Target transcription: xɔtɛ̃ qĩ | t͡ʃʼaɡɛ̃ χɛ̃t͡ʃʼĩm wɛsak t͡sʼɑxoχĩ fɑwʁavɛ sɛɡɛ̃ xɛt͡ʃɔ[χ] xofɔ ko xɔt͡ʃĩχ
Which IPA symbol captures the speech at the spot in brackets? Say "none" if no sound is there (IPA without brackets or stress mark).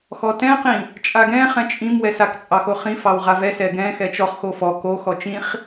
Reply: χ